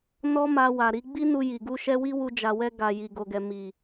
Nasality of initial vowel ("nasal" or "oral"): oral